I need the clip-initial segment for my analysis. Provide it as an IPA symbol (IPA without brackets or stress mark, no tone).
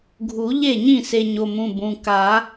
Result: ɡʱ